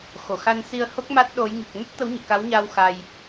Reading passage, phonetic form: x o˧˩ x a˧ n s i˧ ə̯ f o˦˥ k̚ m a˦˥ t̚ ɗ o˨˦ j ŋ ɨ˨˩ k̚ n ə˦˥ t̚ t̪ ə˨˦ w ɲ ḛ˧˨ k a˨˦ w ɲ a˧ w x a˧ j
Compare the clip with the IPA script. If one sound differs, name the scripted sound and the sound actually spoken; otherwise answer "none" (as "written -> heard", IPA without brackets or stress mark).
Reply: f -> h